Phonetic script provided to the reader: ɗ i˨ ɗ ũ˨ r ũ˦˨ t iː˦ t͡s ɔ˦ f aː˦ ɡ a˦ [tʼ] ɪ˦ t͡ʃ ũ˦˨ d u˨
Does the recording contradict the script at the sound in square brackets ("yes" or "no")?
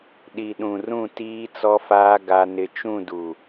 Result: yes